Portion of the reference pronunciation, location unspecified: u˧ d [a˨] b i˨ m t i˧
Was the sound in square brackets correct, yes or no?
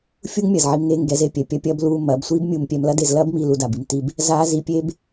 yes